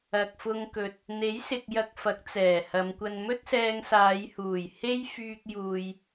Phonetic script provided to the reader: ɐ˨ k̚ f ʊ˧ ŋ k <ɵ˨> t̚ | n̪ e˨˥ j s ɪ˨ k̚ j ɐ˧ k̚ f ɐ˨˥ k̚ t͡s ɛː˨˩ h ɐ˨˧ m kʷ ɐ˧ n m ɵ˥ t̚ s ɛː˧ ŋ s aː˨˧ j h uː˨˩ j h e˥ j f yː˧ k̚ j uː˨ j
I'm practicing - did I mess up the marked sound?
no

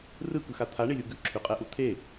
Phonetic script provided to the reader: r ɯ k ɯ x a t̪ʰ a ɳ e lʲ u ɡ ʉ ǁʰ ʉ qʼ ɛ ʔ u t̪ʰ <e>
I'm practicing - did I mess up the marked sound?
no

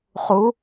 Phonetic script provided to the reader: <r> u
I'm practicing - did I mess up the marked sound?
yes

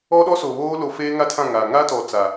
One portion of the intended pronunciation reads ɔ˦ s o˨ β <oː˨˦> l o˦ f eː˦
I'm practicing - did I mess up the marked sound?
yes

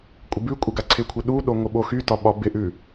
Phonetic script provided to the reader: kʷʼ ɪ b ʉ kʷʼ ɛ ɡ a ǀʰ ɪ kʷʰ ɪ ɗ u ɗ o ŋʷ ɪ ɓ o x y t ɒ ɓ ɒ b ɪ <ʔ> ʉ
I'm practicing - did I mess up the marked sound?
no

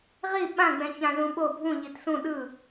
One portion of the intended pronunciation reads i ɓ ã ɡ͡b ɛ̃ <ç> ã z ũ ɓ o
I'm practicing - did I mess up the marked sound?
no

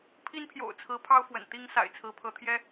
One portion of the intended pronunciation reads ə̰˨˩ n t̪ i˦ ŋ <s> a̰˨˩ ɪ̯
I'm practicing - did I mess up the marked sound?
no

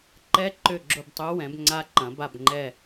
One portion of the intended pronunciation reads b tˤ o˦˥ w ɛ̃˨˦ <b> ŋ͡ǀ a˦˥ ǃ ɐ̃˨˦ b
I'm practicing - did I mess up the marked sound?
no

